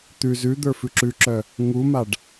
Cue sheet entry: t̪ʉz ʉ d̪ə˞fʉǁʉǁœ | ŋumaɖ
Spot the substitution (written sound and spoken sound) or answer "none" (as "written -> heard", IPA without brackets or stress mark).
none